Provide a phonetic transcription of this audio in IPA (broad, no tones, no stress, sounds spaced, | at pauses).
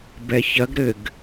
b ɛ ç ɐ ɡ ɾ ɘ ɡ